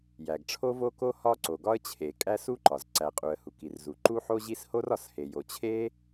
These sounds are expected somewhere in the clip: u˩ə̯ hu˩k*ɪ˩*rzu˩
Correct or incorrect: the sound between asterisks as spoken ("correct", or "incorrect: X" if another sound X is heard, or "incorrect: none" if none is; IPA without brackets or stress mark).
incorrect: i˩